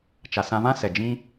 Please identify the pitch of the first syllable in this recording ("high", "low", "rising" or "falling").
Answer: low